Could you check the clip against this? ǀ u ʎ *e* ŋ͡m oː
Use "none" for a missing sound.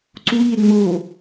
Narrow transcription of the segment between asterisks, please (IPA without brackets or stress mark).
e